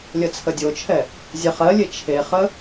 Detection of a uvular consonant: present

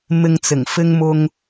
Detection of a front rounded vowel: absent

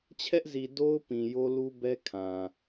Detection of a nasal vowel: present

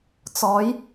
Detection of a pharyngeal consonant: absent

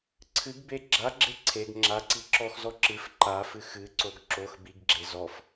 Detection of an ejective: absent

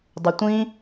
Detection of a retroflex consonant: absent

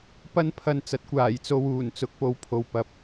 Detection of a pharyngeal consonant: absent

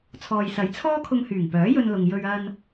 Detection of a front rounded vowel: present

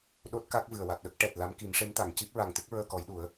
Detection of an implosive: present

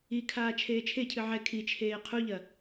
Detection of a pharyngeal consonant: present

